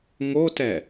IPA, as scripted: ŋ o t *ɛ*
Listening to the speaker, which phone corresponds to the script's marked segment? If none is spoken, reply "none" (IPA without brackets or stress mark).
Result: ɛ